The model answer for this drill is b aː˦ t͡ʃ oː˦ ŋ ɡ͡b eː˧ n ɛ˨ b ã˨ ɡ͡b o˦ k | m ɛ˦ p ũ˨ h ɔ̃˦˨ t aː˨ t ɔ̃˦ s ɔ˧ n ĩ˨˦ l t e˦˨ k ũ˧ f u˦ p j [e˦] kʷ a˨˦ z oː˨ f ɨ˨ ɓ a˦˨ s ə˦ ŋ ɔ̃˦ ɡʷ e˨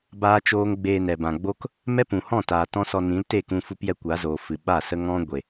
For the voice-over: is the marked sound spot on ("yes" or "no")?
no